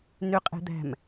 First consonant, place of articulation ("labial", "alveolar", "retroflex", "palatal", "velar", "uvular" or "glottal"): alveolar